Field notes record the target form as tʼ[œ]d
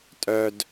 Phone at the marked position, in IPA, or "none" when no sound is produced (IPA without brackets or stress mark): œ